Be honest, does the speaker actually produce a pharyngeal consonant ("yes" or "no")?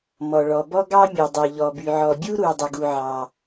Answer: yes